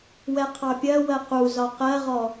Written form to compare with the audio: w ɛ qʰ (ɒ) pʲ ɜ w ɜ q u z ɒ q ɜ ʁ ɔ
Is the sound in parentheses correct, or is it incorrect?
incorrect